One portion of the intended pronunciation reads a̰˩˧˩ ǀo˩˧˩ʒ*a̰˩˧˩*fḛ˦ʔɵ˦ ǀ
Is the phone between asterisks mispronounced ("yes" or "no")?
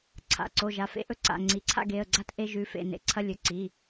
yes